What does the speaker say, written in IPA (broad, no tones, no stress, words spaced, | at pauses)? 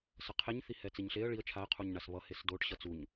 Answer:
sʌqʰeɲ θihɛt͡siɲɬeə̯ ɭiə̯ t͡ʃʰaə̯ qʰuɲɳasβʌ hesdoʈ ɕʌt͡suɲ